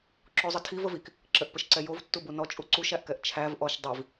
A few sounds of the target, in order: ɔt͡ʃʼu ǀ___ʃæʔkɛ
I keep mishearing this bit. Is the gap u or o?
u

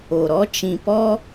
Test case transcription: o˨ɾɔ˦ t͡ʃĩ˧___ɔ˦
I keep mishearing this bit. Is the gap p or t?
p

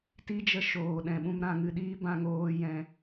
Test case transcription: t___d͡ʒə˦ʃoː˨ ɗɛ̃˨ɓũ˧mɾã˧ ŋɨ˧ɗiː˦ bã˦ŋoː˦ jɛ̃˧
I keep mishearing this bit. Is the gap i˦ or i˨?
i˦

